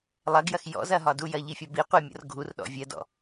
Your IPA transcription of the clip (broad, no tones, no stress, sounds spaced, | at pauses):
lˠ ɐ ɡ j ɐ x j ɔ̰ z ɐ ɦ ɒ d u j ɐ ʎ i fʲ ɒ b i qʷ e mʲ ɔ̰ r ɡʱ u r ɗ ɔ̰ vʲ ɜ d ɔ̰